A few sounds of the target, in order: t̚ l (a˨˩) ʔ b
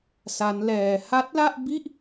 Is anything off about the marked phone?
yes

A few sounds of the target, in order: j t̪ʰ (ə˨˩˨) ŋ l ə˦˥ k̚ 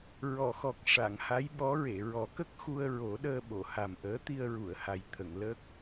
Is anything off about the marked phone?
no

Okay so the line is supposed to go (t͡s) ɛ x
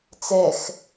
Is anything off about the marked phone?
no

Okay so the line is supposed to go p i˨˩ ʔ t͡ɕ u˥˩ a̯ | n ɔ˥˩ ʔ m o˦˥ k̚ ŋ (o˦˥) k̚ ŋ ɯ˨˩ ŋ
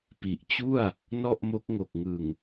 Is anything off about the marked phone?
yes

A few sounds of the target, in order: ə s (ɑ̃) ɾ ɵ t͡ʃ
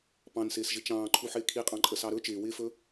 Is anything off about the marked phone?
yes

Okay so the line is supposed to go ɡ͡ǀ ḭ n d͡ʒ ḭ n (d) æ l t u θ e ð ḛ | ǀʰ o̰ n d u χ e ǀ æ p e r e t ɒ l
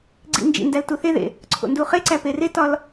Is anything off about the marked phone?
no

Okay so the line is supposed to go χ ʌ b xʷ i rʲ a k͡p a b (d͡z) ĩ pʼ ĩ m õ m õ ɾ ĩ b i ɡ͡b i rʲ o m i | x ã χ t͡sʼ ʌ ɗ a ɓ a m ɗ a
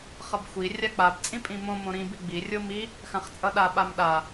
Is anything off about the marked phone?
yes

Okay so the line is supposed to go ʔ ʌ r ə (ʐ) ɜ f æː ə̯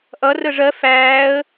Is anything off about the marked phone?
no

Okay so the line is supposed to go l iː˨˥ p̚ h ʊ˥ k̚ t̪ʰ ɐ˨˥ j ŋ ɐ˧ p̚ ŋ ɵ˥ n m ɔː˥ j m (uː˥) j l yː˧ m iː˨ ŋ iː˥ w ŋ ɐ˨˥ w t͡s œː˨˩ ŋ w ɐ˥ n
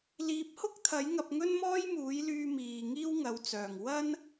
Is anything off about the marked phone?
yes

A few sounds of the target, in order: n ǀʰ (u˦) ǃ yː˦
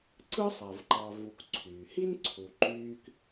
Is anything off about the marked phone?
yes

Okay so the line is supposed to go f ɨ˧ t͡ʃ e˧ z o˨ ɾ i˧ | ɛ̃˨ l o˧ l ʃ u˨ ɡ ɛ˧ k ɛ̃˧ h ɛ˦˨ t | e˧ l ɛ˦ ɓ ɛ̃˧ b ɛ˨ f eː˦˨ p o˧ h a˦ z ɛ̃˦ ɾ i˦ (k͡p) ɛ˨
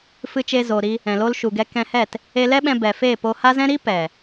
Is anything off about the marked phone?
yes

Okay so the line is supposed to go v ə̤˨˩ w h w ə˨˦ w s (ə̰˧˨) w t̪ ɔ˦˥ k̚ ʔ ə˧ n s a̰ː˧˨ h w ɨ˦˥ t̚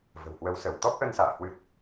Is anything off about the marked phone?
yes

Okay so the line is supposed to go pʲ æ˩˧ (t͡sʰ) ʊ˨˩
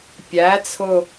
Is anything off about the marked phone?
no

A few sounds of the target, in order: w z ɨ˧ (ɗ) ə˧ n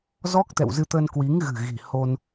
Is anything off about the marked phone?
yes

